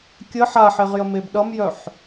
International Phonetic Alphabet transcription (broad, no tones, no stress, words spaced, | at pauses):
kʲə ħaħeʁjəmeb ɗʌmjœħ